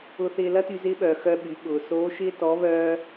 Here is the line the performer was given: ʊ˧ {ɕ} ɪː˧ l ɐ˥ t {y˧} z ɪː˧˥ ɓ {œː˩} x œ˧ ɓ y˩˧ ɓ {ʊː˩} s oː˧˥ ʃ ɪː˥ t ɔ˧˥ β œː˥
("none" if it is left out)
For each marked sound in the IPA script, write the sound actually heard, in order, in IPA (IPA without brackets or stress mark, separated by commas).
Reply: θ, y˧, œː˩, ʊː˩